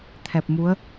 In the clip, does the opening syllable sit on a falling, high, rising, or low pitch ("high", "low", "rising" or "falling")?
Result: low